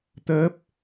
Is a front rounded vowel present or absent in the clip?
absent